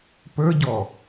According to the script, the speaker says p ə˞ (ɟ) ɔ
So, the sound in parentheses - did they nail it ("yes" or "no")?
yes